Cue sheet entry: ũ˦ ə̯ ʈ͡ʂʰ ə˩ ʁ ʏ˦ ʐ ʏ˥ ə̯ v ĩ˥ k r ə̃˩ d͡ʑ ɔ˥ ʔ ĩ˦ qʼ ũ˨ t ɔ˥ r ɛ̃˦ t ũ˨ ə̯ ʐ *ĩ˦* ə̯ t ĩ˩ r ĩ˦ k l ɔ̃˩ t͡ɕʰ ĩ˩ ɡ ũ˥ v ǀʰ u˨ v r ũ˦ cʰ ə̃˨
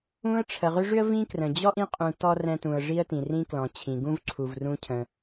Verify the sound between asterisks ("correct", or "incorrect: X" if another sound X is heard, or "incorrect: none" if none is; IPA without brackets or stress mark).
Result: incorrect: i˦